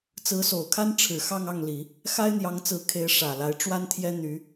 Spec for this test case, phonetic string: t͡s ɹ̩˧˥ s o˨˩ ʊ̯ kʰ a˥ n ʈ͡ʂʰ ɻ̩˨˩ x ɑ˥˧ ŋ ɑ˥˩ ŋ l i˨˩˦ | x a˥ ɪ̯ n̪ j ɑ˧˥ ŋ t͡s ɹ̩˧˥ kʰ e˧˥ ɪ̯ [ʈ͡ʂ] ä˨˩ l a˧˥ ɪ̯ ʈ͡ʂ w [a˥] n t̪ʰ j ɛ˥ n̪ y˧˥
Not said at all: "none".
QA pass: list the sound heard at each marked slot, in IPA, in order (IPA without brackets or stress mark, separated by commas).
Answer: ʂ, a˥